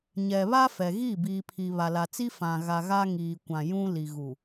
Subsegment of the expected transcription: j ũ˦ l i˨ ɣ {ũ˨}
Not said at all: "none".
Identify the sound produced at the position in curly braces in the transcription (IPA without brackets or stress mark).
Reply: u˨